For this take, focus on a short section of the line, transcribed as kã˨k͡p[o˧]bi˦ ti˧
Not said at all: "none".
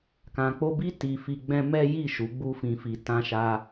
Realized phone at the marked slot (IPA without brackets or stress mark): o˧